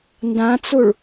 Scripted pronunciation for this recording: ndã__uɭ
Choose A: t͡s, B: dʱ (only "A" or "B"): A